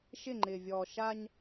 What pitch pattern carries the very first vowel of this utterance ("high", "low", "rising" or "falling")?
falling